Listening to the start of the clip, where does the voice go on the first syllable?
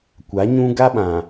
rising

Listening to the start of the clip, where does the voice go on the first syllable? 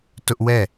high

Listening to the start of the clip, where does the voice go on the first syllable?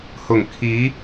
low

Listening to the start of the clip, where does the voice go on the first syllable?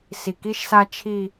low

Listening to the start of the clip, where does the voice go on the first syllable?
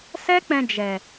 high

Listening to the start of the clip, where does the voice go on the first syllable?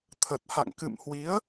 low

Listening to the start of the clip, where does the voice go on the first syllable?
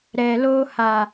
low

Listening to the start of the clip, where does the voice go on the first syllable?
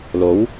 rising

